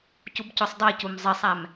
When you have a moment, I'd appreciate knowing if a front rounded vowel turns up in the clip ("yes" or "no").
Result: no